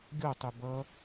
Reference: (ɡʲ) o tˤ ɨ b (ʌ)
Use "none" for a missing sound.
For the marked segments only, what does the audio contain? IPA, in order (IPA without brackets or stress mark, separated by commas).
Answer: ɡʲ, ʌ